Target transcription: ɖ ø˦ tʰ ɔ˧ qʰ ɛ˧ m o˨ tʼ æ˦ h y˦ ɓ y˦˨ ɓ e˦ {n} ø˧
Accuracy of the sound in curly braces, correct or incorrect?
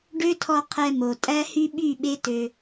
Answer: incorrect